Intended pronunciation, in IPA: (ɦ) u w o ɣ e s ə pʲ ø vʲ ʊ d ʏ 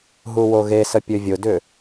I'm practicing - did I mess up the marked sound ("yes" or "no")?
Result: no